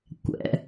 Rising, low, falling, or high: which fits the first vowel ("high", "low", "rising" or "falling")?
low